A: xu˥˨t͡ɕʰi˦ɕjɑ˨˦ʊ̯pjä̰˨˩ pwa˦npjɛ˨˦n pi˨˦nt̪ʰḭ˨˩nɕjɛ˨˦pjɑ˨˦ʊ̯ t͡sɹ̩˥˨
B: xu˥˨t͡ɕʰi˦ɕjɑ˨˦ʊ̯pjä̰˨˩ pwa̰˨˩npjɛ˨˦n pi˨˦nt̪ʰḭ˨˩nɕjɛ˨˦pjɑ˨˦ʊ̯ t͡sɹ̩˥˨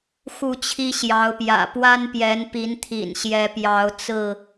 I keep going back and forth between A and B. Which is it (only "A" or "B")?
A